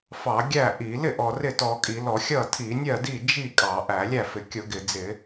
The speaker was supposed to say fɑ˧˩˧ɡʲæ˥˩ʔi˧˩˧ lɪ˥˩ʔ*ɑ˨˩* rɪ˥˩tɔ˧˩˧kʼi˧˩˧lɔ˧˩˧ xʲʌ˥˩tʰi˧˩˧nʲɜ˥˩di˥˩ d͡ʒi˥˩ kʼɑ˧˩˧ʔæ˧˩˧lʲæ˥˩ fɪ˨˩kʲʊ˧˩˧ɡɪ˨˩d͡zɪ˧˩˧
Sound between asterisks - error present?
yes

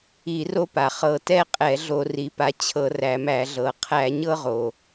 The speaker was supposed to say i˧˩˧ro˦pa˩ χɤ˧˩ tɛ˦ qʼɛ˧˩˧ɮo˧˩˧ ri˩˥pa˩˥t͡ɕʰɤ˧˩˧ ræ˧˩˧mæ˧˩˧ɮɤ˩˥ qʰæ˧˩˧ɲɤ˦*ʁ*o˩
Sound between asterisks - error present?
no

